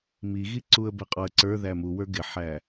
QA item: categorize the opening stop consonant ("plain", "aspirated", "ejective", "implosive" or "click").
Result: click